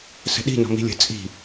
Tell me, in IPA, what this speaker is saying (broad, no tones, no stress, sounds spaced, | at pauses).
s ə̤ ɗ i̤ n ɔ̤ m i̤ lʲ ə̤ t͡sʼ i̤